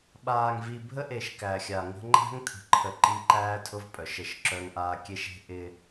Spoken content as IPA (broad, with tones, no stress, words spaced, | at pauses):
ɓaː˨ŋvi˨ bʱə˦ʔe˨ʃ kæ˨xʲa˨ŋə̤˦ ŋ͡ǃæ̤˦ŋt̪ʰə̤˨ǃʰə˨ ǃi˦ǃæː˦tʰʊ˦v pʼœ˨ʃə˦˨ʃǁœ˦ŋʔaː˦ kʲe˦ʃe̤˦ ʔɪ˦